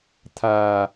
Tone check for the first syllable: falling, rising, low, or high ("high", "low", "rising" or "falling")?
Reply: low